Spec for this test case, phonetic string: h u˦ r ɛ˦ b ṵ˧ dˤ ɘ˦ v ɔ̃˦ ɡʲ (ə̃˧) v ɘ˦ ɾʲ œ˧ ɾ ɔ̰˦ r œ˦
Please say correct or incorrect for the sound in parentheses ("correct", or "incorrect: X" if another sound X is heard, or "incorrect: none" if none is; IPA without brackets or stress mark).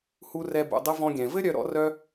incorrect: ɛ̃˧